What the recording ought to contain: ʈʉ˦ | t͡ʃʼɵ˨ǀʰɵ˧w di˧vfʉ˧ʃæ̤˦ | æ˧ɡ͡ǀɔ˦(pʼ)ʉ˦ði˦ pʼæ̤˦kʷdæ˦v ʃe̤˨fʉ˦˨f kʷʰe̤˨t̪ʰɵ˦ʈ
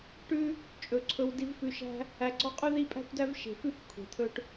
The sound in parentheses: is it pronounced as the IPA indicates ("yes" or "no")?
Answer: no